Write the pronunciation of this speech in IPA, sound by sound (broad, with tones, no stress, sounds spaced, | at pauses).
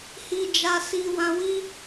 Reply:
h i˧ d͡ʒ a˧ s i˦ w ã˦ w i˦